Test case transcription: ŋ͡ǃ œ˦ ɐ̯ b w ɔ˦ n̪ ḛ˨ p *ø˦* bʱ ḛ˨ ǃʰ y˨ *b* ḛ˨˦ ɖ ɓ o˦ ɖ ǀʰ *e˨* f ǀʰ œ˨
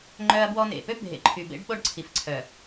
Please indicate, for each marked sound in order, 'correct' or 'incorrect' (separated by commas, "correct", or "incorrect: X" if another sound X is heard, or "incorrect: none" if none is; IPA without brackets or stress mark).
correct, correct, incorrect: i˨